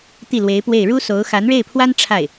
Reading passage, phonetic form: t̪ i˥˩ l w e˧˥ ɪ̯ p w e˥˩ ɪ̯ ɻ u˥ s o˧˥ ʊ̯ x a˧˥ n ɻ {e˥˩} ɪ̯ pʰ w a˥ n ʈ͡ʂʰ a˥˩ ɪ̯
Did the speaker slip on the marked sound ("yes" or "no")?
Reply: no